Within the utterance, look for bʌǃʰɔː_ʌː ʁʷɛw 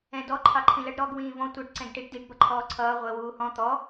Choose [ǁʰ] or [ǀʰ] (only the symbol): ǀʰ